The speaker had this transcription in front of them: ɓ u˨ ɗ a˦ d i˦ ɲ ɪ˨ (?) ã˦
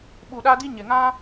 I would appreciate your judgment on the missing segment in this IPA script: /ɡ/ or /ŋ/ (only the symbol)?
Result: ŋ